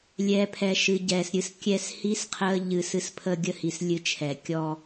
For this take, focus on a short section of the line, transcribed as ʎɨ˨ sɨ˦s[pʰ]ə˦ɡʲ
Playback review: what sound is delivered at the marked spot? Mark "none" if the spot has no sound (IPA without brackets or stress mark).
pʰ